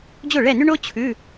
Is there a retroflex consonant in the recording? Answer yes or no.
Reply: yes